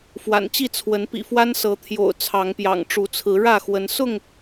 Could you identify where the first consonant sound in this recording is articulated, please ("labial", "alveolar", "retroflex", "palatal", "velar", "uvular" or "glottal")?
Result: labial